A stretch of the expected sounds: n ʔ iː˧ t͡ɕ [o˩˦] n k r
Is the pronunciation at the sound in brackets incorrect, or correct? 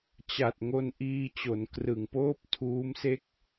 correct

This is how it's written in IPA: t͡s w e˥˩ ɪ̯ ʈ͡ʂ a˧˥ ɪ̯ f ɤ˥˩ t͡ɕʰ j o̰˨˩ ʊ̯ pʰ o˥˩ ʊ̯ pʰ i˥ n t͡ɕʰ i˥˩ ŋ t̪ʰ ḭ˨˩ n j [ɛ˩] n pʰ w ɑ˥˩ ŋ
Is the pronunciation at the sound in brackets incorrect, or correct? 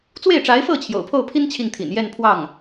incorrect: ɛ˥˧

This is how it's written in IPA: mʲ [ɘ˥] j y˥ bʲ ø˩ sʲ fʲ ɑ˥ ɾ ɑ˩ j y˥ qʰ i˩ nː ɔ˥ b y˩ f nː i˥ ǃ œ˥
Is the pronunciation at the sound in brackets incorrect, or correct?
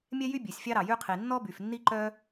incorrect: ɛ˥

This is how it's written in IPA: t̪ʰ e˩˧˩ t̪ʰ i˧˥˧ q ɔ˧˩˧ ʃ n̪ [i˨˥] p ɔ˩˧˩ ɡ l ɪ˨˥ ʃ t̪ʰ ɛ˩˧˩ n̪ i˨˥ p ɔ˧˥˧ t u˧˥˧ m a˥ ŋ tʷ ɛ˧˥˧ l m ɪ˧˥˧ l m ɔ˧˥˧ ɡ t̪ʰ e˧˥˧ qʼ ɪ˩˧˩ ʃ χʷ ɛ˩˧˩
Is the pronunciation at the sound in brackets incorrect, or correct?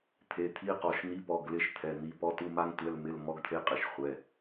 correct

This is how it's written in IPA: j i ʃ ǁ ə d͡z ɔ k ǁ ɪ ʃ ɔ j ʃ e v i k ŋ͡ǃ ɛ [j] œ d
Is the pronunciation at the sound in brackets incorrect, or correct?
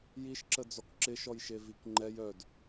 correct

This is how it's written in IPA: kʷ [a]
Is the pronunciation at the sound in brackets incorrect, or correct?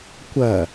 incorrect: ɐ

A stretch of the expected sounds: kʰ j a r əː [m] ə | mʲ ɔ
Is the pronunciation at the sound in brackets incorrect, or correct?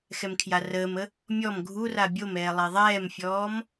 correct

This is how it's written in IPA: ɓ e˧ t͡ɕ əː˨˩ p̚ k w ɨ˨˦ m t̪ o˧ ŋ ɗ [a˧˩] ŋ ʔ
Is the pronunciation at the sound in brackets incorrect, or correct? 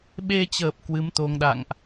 incorrect: a̰˧˨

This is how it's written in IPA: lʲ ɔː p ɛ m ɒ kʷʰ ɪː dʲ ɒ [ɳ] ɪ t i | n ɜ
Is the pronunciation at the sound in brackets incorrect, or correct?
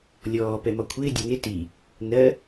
incorrect: n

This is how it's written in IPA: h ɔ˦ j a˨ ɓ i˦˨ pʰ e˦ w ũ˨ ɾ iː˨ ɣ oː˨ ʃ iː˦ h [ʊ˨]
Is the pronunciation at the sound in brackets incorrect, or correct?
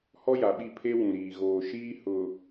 correct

